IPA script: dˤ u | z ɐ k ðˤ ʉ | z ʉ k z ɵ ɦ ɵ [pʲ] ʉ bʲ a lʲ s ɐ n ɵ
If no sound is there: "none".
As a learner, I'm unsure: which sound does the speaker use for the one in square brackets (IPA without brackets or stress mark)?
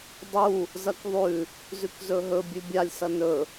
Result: bʲ